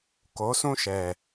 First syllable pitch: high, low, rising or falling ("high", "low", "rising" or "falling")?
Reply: rising